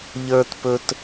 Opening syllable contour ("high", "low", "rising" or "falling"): high